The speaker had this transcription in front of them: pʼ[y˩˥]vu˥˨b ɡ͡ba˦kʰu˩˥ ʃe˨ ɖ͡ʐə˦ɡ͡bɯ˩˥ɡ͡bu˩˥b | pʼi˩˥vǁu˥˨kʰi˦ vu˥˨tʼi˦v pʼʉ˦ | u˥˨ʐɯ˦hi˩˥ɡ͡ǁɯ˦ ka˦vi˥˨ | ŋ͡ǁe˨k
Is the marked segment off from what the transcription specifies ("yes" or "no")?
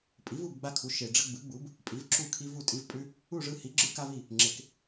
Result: yes